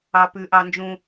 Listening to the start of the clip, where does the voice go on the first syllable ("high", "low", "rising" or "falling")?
high